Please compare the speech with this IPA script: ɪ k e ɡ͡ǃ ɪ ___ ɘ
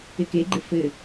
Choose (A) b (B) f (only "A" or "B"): B